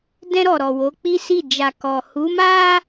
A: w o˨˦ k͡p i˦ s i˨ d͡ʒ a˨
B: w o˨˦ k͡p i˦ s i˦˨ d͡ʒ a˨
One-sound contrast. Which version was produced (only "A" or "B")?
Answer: B